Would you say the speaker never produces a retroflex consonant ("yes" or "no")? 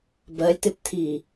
yes